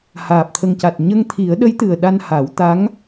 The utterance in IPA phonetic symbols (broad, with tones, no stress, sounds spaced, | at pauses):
h aː˨˩ p̚ t̪ʰ ə˨˩ ŋ c a˨˩ t̚ ɲ ə˧ ŋ t̪ʰ i˨˩˦ ə̯ ɗ ə˧˥ j t̪ ɨ˨˩ ə̯ ɗ a˧ n h a˨˩˦ w t̪ a˧˥ ŋ